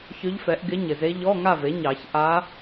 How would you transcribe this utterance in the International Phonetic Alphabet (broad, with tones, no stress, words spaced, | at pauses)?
çʏ˧˥ʎfɛ˩˥ʔɡɪ˧˥ ɲɪ˩ze˧˥ ʎɔ˧˥˧ŋa˥˨ve˩˥ɲɑ˨˩˦ç ʔa˧˥